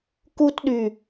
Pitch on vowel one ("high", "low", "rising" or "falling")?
high